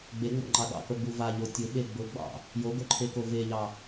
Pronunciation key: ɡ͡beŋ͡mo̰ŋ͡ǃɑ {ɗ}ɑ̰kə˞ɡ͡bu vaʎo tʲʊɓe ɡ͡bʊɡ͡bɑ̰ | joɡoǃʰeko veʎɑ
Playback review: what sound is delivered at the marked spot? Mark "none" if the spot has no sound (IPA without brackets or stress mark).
ɗ